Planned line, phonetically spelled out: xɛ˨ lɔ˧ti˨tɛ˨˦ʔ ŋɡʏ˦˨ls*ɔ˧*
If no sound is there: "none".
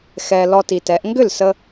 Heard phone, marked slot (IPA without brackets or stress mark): ə˧